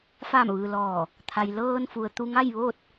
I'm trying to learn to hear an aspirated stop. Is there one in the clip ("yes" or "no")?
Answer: yes